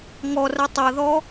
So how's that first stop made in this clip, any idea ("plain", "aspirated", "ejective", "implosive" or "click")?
plain